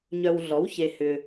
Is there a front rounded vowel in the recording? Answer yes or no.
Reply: yes